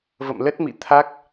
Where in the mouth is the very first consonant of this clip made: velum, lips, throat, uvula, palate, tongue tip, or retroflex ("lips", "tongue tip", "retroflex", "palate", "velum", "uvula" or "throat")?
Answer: lips